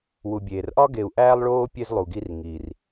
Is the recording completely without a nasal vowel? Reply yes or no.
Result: yes